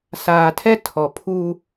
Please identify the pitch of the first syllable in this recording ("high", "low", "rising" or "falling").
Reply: low